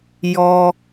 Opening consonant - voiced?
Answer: yes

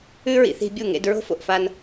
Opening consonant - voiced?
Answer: yes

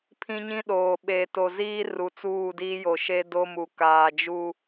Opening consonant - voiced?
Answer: no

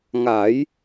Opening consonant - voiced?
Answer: yes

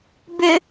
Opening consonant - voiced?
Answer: yes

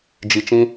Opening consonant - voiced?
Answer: yes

